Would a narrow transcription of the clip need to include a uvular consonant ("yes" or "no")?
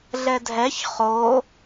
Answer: yes